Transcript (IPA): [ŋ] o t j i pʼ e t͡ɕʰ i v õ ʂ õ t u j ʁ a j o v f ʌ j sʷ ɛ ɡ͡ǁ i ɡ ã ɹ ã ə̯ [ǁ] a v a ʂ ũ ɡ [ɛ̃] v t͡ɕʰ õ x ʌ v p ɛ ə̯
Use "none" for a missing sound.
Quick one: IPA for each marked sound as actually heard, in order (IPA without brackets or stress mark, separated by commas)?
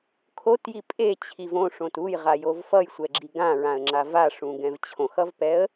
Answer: kʰ, ŋ͡ǁ, ɛ̃